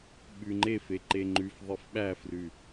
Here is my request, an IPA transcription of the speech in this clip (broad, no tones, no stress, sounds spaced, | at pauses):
ɓ ʉ ŋ͡ǃ e f e ǃ e ŋ͡ǃ ʉ f ðˤ e f ɓ æ f r ʉ